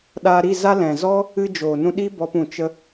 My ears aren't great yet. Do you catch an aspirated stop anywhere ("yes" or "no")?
no